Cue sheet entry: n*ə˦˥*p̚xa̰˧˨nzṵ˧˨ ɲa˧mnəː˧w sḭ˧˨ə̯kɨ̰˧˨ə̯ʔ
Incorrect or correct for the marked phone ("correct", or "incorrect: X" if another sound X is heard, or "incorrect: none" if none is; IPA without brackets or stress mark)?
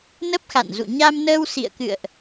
correct